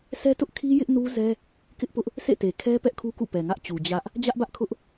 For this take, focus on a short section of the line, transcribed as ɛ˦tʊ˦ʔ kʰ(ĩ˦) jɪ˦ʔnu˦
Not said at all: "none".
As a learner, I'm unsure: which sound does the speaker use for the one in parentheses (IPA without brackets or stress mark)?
i˦